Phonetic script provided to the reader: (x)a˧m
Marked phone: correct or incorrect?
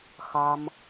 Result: correct